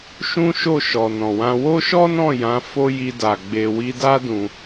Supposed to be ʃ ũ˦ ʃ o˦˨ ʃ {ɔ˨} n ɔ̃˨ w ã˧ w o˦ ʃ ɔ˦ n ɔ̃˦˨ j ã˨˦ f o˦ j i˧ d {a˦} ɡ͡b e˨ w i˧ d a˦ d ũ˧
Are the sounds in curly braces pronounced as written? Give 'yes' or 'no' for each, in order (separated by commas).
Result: yes, no